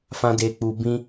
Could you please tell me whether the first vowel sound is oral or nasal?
nasal